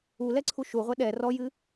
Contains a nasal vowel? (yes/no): no